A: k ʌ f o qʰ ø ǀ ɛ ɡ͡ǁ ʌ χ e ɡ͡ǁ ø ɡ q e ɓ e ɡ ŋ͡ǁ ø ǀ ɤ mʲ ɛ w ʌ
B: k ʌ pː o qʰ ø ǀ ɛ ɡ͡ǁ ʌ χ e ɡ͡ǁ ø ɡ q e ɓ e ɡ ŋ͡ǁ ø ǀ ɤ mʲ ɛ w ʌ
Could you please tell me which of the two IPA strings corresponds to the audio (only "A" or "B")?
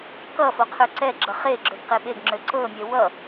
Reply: A